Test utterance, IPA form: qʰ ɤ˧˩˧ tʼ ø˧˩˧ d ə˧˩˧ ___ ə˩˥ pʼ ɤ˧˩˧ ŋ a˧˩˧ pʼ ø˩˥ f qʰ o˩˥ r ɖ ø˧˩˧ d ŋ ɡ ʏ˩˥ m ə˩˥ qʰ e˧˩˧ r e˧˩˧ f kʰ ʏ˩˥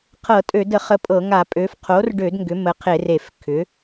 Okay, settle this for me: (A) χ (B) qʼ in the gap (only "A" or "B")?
A